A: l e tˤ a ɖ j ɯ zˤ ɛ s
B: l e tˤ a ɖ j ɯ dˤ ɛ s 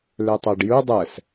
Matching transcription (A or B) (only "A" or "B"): B